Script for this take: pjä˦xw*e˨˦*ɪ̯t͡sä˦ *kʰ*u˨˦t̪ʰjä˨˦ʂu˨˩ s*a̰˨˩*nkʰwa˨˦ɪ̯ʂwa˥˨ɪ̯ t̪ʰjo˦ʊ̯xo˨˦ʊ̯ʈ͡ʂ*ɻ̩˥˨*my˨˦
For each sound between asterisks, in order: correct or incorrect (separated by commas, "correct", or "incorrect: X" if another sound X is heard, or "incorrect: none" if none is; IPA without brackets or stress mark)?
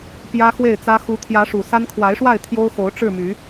incorrect: e˥˨, incorrect: x, incorrect: a˦, correct